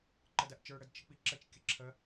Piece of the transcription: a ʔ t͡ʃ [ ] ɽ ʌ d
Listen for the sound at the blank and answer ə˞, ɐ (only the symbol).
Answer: ə˞